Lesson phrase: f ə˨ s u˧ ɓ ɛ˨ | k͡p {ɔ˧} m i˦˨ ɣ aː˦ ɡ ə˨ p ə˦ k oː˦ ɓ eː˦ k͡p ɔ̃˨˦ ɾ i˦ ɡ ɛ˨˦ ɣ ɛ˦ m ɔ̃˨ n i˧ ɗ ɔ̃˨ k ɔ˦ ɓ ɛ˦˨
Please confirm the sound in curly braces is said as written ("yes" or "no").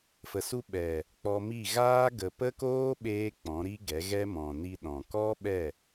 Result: yes